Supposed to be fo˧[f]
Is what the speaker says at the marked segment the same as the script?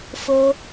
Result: no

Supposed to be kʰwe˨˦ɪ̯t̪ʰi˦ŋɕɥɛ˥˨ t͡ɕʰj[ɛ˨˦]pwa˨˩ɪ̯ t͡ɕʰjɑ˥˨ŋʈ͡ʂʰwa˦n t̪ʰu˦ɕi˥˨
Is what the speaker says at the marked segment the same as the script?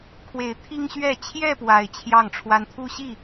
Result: no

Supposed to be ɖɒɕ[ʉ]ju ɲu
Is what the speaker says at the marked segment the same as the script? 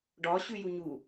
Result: yes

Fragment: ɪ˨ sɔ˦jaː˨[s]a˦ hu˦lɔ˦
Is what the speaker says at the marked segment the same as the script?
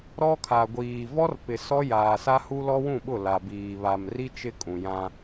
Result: yes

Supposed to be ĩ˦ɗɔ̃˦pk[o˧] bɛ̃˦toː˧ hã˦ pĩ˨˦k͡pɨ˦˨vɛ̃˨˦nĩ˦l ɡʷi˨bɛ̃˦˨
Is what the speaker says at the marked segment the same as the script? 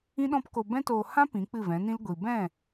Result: yes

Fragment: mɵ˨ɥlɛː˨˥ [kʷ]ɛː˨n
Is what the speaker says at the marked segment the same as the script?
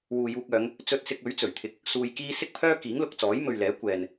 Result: yes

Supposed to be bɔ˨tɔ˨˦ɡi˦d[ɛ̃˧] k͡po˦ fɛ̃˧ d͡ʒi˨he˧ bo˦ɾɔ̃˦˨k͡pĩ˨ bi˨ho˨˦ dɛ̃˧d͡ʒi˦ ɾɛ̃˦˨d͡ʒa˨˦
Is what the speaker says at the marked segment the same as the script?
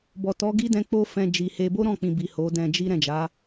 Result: yes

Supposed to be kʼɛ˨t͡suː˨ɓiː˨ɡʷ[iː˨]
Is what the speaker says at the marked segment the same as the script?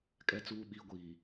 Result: yes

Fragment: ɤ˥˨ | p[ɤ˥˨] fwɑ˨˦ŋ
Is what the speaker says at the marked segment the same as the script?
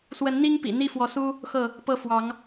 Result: no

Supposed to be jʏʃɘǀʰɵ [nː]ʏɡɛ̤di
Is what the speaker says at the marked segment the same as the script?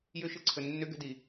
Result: yes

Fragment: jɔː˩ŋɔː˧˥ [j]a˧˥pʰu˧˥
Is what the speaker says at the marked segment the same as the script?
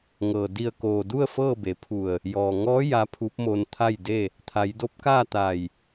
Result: yes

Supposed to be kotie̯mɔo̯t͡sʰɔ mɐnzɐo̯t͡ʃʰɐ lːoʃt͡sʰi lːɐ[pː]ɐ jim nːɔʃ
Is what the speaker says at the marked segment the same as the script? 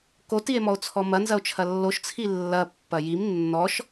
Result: yes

